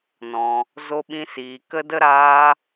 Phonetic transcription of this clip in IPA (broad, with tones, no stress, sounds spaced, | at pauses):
n ɔ̃˧ | z o˦ ɓ ĩ˦ s iː˧ k ə˦ d ə˦ ɾ aː˦